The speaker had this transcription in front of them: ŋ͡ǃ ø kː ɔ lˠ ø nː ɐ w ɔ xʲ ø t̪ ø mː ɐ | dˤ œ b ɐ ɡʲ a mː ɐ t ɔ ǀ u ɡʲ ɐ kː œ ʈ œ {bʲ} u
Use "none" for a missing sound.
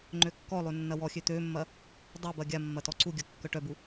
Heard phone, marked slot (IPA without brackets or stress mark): b